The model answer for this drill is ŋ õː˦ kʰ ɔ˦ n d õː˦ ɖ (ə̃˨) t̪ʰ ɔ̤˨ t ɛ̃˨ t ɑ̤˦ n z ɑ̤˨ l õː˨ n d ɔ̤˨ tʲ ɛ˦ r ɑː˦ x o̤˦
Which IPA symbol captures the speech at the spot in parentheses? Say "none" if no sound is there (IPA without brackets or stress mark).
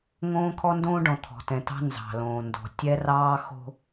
ɔ̃˨